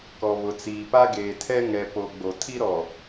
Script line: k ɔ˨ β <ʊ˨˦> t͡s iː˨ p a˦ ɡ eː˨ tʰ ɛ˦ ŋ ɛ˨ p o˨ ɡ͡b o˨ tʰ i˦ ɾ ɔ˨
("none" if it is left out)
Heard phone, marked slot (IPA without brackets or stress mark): ʊ˨